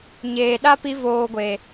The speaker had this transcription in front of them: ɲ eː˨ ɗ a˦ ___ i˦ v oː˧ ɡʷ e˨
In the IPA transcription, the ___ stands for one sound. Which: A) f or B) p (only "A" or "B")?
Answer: B